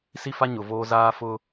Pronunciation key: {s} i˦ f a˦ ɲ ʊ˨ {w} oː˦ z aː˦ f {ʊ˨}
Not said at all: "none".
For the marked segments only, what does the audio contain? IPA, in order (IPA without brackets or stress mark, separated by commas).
s, v, ʊ˦